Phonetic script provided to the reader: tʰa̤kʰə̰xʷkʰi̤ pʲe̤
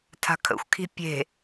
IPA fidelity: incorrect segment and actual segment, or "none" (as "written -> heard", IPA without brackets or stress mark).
none